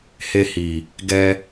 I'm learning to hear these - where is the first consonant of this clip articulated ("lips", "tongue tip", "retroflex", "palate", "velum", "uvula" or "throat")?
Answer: throat